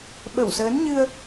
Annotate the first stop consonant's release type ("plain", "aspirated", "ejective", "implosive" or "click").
implosive